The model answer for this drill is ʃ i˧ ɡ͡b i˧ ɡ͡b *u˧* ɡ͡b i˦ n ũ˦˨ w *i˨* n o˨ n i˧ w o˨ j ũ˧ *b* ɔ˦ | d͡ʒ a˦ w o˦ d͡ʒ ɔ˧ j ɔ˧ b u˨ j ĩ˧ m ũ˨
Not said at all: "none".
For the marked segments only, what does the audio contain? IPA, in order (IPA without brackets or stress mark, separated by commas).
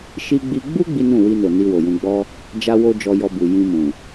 u˦, i˧, ɡ͡b